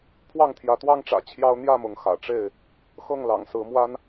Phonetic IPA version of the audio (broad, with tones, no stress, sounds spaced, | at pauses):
pʰ w ɑ˥˨ ŋ t̪ʰ j ä˨˦ t̪ w ɑ˦ ŋ ʈ͡ʂ ä̰˨˩ t͡ɕʰ j ɑ˦ ʊ̯ n̪ j ä˥˨ m ʊ˨˦ ŋ x ä̰˨˩ ʈ͡ʂ e˥˨ ɪ̯ | x ɤ˥˨ ŋ l ɑ̰˨˩ ŋ s ɹ̩˨˦ m w a˦ n